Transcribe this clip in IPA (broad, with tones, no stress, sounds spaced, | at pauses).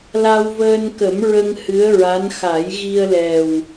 l a˧ w v əː˧ n k ə˨˩˦ m ɹ ə˧ ŋ h ɨ˧˥ ə̯ ɹ a˧˥ n x a˨˩˦ j ɣ i˧ ə̯ l ɛ˨˩ w